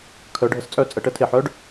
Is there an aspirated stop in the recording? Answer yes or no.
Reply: yes